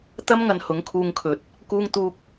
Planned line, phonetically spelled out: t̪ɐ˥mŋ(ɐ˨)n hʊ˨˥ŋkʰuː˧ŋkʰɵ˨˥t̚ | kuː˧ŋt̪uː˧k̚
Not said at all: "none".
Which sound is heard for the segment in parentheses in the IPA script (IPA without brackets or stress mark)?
ɐ˨